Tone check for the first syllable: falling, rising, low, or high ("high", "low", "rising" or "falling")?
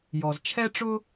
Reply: low